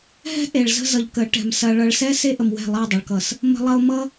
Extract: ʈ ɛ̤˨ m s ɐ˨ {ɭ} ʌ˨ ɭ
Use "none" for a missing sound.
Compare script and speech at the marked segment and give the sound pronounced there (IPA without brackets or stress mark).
ɭ